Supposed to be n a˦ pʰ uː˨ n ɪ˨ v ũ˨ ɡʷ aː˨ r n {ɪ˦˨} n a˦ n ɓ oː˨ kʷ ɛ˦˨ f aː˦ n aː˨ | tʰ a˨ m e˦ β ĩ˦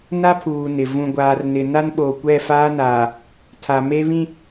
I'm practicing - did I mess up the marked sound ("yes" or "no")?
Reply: yes